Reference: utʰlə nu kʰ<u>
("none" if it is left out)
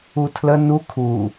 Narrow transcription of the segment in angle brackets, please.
u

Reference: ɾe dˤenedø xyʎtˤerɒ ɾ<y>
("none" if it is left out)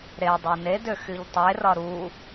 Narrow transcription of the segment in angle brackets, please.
u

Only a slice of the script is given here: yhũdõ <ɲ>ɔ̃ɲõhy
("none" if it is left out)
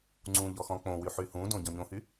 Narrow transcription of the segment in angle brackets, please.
ɟ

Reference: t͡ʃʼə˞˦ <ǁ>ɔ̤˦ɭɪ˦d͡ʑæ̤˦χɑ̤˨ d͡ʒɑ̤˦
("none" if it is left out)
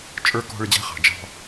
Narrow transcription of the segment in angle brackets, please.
k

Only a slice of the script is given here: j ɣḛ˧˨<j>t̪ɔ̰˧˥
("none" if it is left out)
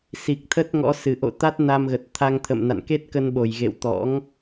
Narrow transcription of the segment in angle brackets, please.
w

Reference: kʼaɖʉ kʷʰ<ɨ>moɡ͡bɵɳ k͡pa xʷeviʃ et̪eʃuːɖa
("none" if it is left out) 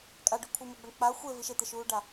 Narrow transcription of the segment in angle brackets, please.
ɨ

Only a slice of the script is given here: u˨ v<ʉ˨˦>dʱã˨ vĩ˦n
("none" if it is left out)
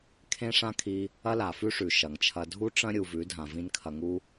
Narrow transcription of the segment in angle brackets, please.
ʉ˨˦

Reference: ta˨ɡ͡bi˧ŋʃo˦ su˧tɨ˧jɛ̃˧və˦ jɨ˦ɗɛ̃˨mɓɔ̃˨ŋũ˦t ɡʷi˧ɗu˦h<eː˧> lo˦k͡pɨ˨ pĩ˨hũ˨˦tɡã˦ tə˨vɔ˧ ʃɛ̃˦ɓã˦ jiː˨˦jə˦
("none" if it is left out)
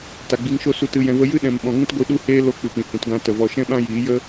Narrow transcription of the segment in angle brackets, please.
eː˦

